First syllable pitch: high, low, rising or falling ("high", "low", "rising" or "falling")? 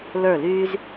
falling